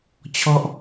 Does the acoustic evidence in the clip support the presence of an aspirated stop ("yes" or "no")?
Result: yes